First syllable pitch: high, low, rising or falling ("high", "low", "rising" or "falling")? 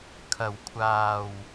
low